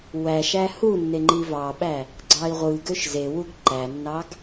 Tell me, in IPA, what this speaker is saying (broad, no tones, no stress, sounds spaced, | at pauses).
w æ ʃ æ h u nː e ŋ͡ǃ i v ɑ ɓ æ | ɡ͡ǀ ɑ i̯ ʁʷ ɯ ɡ ø ʃ z e w u ɡ ǃ æ nː ɑ ɡ